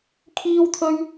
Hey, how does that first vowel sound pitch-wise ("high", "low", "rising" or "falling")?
high